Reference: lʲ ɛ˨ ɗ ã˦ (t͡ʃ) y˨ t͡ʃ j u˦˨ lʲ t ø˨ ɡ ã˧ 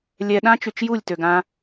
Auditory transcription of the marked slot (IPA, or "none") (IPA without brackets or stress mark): t͡ʃ